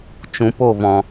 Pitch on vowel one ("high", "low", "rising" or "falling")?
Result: low